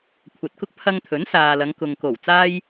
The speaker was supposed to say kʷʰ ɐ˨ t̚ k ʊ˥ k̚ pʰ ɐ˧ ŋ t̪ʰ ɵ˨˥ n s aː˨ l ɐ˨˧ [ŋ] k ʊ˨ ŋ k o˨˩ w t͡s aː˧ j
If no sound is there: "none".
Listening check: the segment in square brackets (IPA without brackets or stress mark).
ŋ